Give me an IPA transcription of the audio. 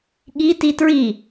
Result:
ɠi titɹi

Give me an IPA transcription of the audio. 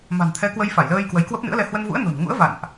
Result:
ma̤˨˩nt̪ʰɛ˨˦ kwə˧jfa˧˩jləː˧j kwə˨˦jkwə˦˥p̚nɨ̰˧˥ə̯lɛ˧ hwə˧nvṵ˧˥ə̯no̤˨˩nŋṵ˧˥ə̯ va̰˧˨nʔ

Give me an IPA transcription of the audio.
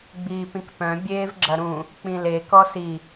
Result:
ɡ͡biːpĩkpœ̃ bʲeːvɡ͡ǁɐɾũ | k͡pĩle kɔsi

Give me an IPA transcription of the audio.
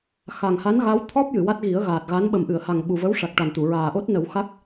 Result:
xa˨˩ŋha˧˥n ɣa˧˥wt̪ʰɔ˦˥p̚ jɨ˨˩˨wa˦˥t̚ ɣi˨˩˦ə̯ɣaː˨˩t̚ɣa˧˥n ɓə˨˩mʔɨ˨˩˨ə̯ha˨˩ŋ ɓu˨˩və˧˥wʂa˨˩k̚ ʈa˨˩nt̪u˨˩˨ ɹaː˨˩ʔo˦˥t̚ nə˨˩˦w xa˦˥k̚

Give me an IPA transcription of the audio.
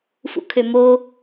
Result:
fṵkʰømo

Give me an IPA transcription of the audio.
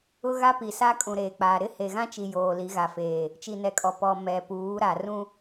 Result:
ʊ˦ɣa˦pi˨sa˦ kʼũ˨ɾeː˨k͡paː˨ ɾɪ˦ he˨ɣã˦t͡ʃi˨ joː˨li˨˦ɣa˨feː˨ | t͡ʃi˨nɛ˨ kʼɔ˨ pɔ˨ mɛ˨puː˨˦ɾa˨ rũ˦

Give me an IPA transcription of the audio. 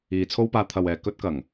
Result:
iː˨˧t͡sʰo˥wpaː˧ t̪ʰɐ˨wɛː˨ kɵ˧t̚kɐ˨˩ŋ

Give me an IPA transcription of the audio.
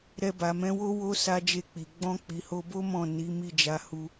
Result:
ɾɛ˧ba˨mɛ̃˨˦wo˦ wo˦ sa˦d͡ʒe˦˨k͡pi˨ ɡ͡bɔ̃˧k͡pi˨ho˧bo˦ mɔ̃˦˨ ni˨˦mi˦˨d͡ʒa˨˦ hu˧

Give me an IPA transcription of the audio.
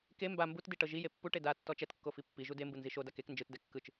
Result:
ke mba mbutdi ʈɤʒije pːuʈe da tːɔt͡ʃɛtkːo fipːiʒu dembɯ nziʃodak ek nd͡ʒɯtdɛ kːɯt͡ʃ

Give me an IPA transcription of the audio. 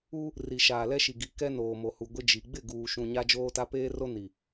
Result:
u˦ | ri˨ʃaː˨ lɛ˦ʃi˨ɡi˨˦ kɛ˦noː˨mo˨hu˨ ɡʷɪ˦d͡ʒi˨ ɡ͡bɪ˦˨ ɡuː˨ʃũ˨ ɲa˦d͡ʒoː˦ta˦ peː˦ro˦ ni˨

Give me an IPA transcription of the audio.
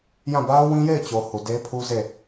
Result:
jã˦˨ ba˦ʊ̯wĩ˦je˦˨ɪ̯t͡ɕo˨ hu˨de˦pʰu˦ze˦˨

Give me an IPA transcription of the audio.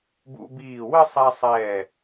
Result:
bṵ˧biː˧˩ wɘ˥˧sˤɛ˧ sˤɛː˧˩

